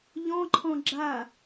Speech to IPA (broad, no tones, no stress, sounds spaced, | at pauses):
ʎ ɔ̃ ǃʰ ɔ̃ ɡ͡ǁ a